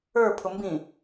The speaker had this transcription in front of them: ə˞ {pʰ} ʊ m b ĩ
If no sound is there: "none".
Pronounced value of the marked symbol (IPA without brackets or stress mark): pʰ